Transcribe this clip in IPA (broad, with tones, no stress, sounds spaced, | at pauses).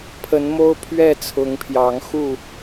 pʰ ə˨˦ n m o˦ ʊ̯ pʰ ɥ ɛ˥˨ t͡sʰ ʊ˨˦ ŋ pʰ j ɑ˨˦ ŋ x u˥˨